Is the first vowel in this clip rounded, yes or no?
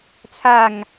no